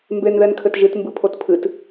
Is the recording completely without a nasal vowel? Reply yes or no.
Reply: yes